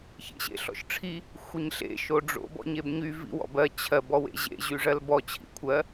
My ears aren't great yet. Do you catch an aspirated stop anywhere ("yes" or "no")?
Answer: yes